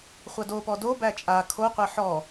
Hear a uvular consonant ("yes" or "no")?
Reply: yes